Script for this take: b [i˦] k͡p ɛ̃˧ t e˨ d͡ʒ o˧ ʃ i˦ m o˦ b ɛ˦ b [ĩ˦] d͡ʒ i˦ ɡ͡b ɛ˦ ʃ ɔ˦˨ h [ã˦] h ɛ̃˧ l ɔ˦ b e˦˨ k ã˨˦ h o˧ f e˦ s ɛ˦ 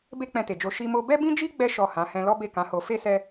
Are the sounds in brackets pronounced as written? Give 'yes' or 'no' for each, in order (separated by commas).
no, yes, no